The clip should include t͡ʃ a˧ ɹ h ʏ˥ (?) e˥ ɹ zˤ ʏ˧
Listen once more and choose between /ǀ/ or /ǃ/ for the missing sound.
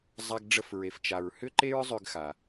ǃ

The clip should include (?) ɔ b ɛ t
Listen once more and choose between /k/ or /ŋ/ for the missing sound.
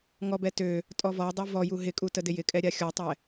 ŋ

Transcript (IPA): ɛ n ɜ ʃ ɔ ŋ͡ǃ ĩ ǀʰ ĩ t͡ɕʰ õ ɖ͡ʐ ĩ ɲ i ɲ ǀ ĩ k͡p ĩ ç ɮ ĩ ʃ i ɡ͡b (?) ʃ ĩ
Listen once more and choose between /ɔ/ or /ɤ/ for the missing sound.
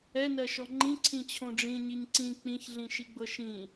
ɤ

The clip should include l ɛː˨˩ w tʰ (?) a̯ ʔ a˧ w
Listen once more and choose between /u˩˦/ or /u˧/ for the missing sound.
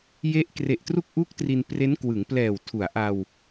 u˩˦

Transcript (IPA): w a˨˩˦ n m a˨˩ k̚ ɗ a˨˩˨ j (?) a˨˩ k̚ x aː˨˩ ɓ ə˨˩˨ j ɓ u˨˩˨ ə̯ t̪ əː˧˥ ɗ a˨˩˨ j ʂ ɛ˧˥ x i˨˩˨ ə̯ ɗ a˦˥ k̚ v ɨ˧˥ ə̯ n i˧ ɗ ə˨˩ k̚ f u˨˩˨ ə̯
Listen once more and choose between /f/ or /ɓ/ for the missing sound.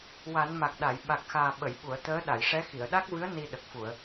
ɓ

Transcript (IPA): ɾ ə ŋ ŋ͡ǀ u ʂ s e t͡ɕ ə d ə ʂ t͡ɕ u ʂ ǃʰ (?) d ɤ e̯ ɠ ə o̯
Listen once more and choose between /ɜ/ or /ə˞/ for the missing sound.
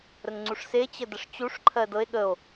ɜ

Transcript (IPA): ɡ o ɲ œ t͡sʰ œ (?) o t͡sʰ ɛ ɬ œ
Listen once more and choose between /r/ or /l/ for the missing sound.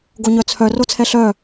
r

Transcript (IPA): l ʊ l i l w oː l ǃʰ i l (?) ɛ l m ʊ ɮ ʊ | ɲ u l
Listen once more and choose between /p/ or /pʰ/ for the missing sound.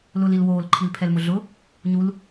pʰ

